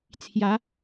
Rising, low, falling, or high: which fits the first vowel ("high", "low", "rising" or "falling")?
rising